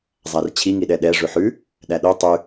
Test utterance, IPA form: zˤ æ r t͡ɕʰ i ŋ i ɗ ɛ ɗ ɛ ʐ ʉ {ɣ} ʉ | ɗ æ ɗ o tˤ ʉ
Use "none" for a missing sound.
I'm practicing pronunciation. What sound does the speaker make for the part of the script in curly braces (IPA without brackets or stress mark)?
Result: ħ